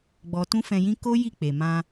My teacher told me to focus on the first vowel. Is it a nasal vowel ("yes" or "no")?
no